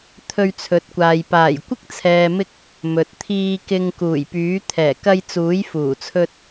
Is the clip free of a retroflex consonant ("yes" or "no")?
yes